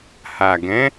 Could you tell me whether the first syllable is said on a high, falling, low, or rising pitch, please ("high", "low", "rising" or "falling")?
low